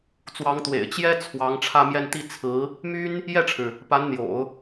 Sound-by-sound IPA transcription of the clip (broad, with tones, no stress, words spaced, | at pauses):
t͡swɑ˧˥ŋt̪wḛ˨˩ɪ̯ t͡ɕjɛ˥ t͡sʰwɑ˧˥ŋ ʈ͡ʂʰä˥˧mjɛ˥˧n t̪i˥˩ t͡sʰɹ̩˧˥ | my˥n | jɛ˥˩ʈ͡ʂʰɻ̩˩ | pa˧˥nn̪jo̰˨˩˦ʊ̯